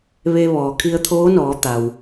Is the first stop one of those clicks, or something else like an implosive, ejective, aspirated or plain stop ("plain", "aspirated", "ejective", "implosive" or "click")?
aspirated